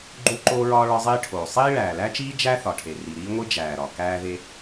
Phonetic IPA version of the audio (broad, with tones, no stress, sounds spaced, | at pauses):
ɡ͡ǃ u˥ ǃ oː˥ ɹ ɒː˥ ɭ ɒ˥ zˤ iː˥ ʈʰ oː˩ sˤ iː˥ ɭ æː˩ l æ˥ t͡ʃ iː˥ d͡ʒ æ˥ θ ɒ˩ ʈʰ e˩ r i˩ ɾ iː˥ ŋʷ i˥ d͡ʒ æː˩ ɾ ɒ˩ k æː˥ ð e˥